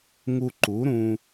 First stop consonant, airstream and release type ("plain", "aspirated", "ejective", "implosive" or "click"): click